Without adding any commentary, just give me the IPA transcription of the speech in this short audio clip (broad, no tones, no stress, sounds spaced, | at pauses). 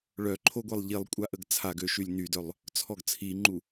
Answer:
ɭ œ ǃʰ o ɡʷ e lˠ ʎ i lˠ kʷʼ a ʔ ə ɡ t͡sʰ a ɡ ø ʃ y lʲ n y d œ lˠ | t͡sʰ ɔ ɡ t͡sʰ i ŋ͡ǃ u